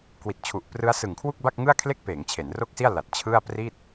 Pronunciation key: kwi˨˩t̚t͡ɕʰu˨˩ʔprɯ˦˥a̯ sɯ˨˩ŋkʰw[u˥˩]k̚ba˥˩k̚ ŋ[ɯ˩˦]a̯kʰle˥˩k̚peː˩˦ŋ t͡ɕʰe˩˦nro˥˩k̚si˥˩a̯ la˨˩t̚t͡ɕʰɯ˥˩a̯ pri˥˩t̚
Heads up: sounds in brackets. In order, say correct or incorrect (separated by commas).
correct, incorrect